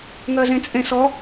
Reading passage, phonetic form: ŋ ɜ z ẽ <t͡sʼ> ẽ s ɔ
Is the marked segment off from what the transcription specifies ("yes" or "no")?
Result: no